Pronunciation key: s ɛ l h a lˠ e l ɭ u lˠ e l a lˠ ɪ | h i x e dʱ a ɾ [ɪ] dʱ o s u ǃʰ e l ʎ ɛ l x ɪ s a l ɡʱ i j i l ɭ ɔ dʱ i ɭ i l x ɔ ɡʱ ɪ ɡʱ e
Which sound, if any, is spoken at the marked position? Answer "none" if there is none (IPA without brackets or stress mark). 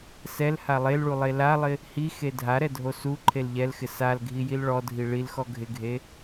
ɛ